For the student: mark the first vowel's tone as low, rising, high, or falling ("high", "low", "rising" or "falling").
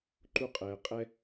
high